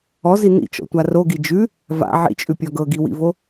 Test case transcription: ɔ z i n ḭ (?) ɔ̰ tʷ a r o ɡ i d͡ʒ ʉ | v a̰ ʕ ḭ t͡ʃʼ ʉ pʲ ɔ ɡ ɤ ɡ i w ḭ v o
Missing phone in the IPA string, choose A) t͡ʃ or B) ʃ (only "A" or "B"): A